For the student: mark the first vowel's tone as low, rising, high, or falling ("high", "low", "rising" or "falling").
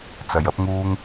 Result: low